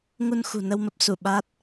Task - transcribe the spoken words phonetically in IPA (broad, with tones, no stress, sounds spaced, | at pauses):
ŋ u˧ n x ṳ˨˩ n ə˧ w m ə˦˥ p̚ s u˧˩ ɓ a˦˥ t̚